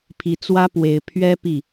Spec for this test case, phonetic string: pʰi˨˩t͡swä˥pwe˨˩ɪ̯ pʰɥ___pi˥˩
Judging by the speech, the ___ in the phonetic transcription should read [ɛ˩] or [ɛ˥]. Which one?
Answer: ɛ˥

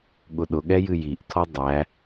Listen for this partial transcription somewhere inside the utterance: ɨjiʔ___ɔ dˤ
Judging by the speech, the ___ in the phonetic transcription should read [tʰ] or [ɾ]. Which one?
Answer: tʰ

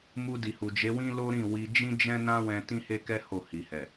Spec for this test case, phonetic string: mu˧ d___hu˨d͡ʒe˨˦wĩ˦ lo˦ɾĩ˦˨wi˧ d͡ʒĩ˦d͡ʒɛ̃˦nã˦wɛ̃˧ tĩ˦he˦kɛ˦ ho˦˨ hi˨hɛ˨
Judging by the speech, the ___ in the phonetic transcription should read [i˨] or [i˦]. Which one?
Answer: i˨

